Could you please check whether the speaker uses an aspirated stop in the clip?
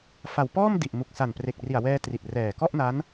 no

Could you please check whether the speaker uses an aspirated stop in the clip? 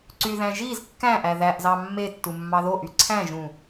yes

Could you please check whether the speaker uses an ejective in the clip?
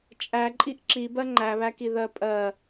yes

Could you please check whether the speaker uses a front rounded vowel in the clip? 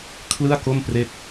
no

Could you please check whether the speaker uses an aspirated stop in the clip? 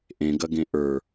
no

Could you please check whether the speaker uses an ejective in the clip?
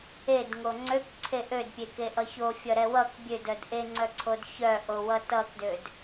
no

